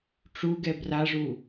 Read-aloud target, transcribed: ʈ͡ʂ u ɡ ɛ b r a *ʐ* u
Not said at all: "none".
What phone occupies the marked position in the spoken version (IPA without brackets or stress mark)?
ʐ